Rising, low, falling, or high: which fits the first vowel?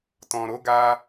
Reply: low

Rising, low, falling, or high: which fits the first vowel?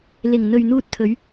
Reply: low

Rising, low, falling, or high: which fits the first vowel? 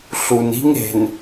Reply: low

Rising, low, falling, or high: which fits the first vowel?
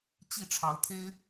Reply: falling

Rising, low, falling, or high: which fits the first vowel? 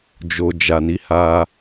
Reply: low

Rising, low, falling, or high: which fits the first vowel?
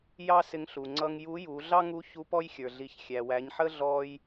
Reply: high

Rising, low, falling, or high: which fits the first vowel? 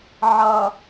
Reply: low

